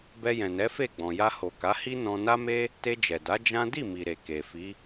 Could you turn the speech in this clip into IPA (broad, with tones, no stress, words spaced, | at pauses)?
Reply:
bɛ˧jɛ̃˨nɛ˨˦fe˦˨ ɡ͡bɔ̃˨ja˧ho˨ ka˨˦hi˦nɔ̃˧ na˦me˦ | te˧d͡ʒɛ˨da˨˦ d͡ʒã˦ di˦˨mi˨ ɾe˨ke˨fi˨˦